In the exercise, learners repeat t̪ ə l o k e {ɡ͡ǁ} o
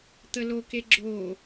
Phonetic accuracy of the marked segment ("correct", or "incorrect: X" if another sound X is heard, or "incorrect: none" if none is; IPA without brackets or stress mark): correct